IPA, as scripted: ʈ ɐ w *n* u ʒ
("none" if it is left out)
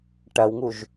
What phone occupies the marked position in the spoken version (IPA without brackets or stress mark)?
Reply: ŋ